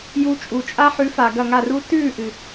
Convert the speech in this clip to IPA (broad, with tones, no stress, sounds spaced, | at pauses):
j u˧ t͡ʃʼ u˨ t͡ʃʼ a˦ ħ ʉ˨˦ f a˨ ɡ ɐ˦˨ ŋ a˦˨ r u˦ t ʉː˦˨ ʔ ɨ˨